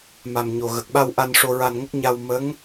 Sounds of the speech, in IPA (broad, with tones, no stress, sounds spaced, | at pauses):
m a˨˩ m ɲ o˨˩ ɣ ə˨˩ k̚ ɓ a˧ w ʔ a˧ n ʂ o˧ ɹ a˧ n ŋ ə˦˥ k̚ ɲ a˧ w m ə˧˥ ŋ